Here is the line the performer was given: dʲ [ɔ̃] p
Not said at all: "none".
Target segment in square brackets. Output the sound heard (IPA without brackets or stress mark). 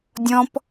ɔ̃